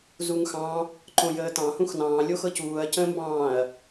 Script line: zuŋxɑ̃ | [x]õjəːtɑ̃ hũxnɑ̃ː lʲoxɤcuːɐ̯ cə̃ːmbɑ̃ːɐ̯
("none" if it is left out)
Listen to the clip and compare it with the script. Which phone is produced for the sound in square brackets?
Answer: ǃ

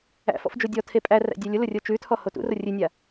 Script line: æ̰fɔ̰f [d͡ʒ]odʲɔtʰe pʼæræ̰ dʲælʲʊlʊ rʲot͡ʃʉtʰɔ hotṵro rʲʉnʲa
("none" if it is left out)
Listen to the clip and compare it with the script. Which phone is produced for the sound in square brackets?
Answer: d͡ʒ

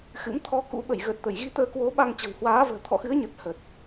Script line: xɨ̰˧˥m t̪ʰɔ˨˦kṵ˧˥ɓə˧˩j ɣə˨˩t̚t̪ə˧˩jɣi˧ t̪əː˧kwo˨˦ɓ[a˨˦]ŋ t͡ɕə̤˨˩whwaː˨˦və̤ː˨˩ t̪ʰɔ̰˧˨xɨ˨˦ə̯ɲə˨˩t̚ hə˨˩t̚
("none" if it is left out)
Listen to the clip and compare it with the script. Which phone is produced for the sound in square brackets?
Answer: a˧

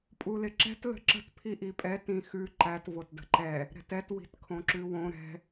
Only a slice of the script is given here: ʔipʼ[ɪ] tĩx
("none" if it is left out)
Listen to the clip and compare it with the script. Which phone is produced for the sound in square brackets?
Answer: ɛ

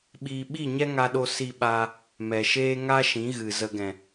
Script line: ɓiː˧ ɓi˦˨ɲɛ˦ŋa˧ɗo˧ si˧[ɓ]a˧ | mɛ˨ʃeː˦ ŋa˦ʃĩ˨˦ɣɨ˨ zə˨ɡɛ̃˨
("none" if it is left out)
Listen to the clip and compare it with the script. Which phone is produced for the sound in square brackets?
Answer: ɓ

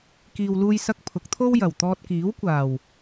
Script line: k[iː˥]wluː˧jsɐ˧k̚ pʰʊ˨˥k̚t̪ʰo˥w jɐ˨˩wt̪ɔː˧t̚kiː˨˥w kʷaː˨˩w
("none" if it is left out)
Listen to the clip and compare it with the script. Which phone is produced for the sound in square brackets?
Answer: iː˨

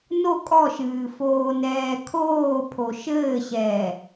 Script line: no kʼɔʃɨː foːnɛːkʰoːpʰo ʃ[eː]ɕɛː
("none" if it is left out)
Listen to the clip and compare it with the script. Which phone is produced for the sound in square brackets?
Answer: ɘː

